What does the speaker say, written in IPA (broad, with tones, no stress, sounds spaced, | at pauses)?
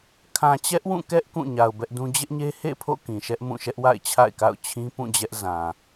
kʰ ã˨ t͡ɕ ɛ˦ ʔ w ũ˦˨ k ɛ˦ ʔ k ũ˦˨ ɲ a˨ ʊ̯ b ɛ˦ ʔ d ũ˦ d͡ʑ ɪ˦ ʔ ɲ e˦ h ḛ˦˨ pʰ o̰˦˨ k ĩ˨ ʃ ɛ˦ ʔ m ũ˦˨ ʃ ɛ˦ ʔ w a̰˦˨ ɪ̯ t͡ɕʰ a̰˦˨ ɪ̯ k a̰˦˨ ʊ̯ t͡ɕʰ ĩ˦ p ũ˦˨ d͡ʑ ɛ˦ ʔ z ã˨